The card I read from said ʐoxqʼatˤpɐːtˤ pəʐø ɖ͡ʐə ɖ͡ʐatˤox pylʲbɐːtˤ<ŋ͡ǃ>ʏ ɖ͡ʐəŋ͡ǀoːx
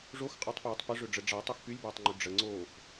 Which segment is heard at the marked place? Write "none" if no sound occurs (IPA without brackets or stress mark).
ŋ͡ǃ